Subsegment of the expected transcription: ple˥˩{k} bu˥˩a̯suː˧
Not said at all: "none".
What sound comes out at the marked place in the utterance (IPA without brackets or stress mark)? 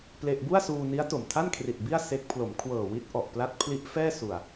ʔ